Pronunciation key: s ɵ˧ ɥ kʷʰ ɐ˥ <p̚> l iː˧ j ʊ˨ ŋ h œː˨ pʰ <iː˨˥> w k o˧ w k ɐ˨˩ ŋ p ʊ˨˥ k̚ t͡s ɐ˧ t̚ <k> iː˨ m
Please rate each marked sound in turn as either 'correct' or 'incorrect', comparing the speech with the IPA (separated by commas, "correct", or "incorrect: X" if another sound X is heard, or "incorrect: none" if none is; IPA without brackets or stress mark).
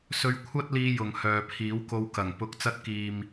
incorrect: t̚, correct, correct